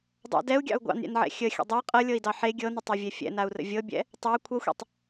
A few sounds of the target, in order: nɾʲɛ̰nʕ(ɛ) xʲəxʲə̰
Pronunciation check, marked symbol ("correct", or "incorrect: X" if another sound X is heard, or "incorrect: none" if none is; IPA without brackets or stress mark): incorrect: ɛ̰